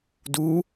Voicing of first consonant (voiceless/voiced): voiced